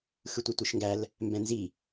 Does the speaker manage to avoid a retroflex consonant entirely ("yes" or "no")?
yes